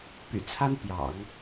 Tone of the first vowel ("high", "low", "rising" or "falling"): low